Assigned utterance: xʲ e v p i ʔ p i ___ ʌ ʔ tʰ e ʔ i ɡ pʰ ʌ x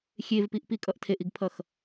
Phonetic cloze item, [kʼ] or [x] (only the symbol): kʼ